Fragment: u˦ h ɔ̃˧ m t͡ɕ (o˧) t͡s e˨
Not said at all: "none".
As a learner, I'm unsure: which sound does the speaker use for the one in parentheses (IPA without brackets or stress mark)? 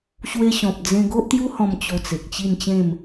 o˧